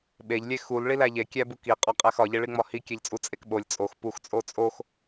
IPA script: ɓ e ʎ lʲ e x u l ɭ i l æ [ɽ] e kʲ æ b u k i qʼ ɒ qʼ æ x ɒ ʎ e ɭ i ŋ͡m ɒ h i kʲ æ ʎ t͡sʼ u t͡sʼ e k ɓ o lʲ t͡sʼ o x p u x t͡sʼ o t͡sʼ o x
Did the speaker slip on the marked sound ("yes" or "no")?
yes